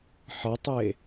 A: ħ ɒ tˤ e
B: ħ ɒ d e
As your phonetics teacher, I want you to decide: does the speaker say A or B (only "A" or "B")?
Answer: A